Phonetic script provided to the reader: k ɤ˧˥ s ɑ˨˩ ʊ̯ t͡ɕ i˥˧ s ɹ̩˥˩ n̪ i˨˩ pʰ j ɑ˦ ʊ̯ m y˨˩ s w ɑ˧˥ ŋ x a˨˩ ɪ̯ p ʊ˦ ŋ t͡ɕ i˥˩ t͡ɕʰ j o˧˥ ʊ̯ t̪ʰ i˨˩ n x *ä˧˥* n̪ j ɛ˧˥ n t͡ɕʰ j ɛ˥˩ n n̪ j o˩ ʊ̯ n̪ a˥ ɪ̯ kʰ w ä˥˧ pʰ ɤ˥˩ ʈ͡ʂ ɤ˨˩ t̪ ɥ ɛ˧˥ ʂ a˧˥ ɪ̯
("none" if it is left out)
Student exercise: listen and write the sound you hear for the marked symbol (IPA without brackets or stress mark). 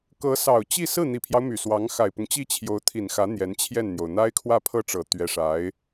ä˧˥